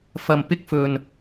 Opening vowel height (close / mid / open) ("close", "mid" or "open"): open